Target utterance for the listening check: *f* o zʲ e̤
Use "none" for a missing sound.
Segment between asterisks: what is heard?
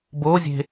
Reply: b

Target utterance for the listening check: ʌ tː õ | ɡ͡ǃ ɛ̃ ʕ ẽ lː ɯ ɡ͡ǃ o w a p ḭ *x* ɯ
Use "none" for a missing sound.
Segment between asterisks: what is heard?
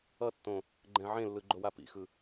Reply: x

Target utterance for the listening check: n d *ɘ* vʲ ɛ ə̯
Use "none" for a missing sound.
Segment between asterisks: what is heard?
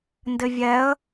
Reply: ɘ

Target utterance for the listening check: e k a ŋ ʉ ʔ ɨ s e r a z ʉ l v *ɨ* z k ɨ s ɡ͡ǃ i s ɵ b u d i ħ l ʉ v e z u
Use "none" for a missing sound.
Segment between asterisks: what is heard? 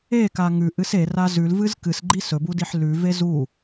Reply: ɨ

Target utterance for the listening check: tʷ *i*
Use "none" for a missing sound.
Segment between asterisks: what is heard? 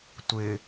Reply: ɪ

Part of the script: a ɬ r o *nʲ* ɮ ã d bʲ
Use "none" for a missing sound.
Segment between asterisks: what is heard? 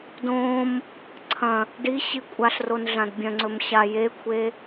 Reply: n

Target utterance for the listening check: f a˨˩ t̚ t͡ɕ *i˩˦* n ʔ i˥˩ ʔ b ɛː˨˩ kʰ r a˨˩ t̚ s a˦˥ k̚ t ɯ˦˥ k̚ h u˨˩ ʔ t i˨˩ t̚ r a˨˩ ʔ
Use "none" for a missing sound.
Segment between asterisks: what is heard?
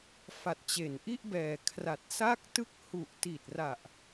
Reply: e˩˦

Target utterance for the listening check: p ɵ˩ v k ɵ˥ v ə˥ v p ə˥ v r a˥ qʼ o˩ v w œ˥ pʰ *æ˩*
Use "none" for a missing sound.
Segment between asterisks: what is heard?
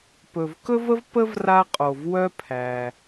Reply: æ˩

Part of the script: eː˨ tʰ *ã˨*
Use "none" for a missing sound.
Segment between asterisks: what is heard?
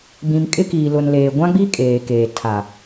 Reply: a˨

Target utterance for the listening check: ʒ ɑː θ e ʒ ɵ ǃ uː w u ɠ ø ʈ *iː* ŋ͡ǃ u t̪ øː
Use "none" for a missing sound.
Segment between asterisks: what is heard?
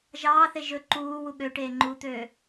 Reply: eː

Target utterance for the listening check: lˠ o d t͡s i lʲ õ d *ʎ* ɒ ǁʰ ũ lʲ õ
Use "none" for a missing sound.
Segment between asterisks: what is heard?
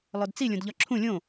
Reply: ʎ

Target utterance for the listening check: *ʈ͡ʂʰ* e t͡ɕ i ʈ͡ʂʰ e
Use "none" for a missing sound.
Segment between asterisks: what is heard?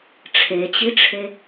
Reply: ʈ͡ʂʰ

